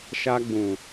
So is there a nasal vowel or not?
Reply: yes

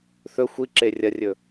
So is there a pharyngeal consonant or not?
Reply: no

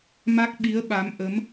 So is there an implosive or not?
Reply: yes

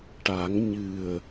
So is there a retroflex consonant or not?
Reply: yes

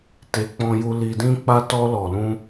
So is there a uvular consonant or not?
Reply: no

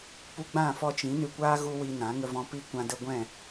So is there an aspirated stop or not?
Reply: no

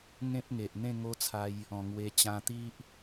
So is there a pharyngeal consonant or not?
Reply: no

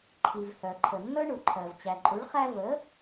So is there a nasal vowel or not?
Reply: no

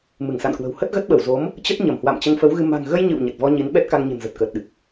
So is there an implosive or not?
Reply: yes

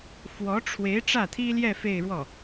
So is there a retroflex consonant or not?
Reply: yes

